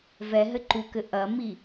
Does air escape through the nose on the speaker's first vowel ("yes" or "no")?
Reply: no